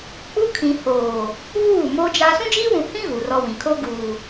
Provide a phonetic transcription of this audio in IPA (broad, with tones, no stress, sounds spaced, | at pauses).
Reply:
k͡p u˦ kʰ ĩ˨ h oː˨ | β uː˦˨ m o˦ d͡ʒ a˦ s ũ˦ d͡ʒ iː˦ w ũ˨ h ĩ˦ ɣ u˨ r ɔ˦ w ĩ˨ kʰ o˦ ɡ uː˨